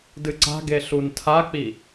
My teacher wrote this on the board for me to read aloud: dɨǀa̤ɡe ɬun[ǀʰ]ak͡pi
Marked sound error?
yes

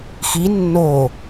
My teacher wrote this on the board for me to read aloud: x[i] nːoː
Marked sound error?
no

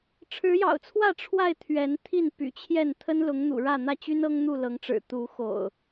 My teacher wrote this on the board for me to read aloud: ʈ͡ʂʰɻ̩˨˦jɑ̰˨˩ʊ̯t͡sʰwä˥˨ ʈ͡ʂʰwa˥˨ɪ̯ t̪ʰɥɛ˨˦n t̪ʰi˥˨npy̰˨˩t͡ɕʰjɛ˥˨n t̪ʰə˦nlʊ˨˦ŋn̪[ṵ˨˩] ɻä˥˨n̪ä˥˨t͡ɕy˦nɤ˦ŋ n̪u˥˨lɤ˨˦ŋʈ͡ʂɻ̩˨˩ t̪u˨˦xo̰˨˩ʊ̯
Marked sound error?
no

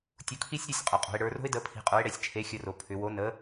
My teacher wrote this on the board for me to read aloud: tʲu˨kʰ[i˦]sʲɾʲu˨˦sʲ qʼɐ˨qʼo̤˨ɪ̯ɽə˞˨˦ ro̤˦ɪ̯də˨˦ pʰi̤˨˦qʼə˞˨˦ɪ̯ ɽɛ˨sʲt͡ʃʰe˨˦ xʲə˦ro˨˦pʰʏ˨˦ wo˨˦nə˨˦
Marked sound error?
no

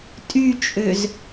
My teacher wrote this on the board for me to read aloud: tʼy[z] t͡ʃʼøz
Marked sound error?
yes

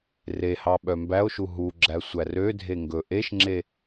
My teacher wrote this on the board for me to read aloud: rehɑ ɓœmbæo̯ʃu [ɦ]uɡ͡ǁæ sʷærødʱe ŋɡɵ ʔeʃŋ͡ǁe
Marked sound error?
no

